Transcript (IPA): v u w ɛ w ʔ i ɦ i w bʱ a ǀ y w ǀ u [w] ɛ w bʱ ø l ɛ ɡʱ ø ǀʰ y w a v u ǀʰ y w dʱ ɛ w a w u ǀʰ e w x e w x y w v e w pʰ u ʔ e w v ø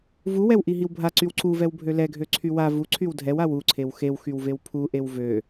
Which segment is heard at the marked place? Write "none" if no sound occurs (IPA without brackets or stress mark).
v